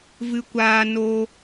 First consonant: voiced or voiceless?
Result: voiced